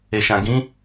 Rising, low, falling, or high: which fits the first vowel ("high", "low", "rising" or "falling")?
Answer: low